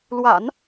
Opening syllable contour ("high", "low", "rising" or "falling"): low